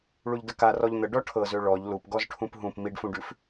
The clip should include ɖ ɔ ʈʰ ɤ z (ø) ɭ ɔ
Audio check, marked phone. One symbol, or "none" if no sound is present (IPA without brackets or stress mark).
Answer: ø